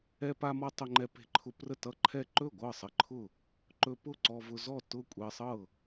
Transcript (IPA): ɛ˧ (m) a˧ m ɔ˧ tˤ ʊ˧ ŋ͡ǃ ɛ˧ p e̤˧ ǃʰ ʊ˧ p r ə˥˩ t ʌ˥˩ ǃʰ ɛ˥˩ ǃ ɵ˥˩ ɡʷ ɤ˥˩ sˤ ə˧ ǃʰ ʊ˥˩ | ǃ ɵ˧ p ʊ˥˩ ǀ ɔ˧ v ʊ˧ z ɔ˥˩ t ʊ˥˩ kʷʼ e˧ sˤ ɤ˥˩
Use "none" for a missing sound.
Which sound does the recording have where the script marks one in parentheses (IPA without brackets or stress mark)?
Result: p